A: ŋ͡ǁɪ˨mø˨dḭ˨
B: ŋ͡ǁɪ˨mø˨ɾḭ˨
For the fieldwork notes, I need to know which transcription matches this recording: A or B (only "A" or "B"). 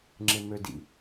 A